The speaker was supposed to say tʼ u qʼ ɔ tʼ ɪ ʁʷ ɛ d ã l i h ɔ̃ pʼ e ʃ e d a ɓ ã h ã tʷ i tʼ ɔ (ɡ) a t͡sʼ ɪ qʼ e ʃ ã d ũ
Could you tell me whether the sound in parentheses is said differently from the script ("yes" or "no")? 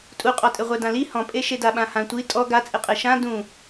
no